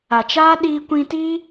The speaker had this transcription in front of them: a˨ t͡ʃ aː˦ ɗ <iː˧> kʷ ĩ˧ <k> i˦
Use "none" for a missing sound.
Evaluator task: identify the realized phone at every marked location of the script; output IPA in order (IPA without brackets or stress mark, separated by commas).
iː˧, t